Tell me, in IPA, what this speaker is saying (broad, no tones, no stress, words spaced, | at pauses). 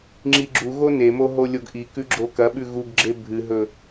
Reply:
ŋ͡ǁiɡ͡ǁuɣo nemo ɦolʲoɡʔikʉ ɡ͡ǁokɐɓʉ ɣuɡɡ͡ǁe bʱɨɦɵ